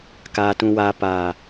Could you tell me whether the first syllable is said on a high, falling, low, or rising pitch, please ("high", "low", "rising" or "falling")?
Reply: low